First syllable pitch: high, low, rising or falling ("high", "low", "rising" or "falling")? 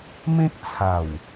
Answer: high